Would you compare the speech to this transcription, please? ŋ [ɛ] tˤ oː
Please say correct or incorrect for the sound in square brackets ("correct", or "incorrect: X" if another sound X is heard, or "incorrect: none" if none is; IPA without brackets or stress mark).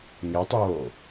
incorrect: e